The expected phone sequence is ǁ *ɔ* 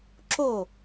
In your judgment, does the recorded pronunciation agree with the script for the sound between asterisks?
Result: no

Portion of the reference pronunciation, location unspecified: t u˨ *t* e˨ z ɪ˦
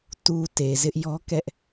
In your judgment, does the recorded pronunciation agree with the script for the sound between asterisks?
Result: yes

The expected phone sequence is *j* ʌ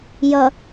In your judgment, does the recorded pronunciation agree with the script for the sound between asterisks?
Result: yes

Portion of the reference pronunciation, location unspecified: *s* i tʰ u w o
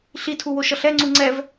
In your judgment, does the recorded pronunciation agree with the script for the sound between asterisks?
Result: no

